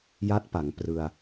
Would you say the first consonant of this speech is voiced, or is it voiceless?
voiced